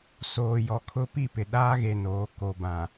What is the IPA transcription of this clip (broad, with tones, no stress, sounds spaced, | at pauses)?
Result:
s oː˨ j ɔ˨ kʰ ʊ˦ p i˦˨ p ɪ˨ ɗ aː˦ ɣ e˨ n oː˨˦ k o˨ b ã˨